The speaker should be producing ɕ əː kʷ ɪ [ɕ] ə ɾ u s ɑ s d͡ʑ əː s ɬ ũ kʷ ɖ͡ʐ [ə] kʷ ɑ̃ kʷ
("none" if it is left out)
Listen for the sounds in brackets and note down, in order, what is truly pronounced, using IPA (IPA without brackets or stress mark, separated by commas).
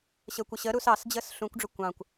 ɕ, ə